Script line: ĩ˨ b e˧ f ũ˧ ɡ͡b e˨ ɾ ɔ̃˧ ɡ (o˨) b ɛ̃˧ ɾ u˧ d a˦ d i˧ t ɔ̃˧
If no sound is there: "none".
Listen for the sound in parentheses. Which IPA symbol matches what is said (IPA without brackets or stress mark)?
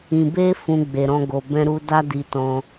o˨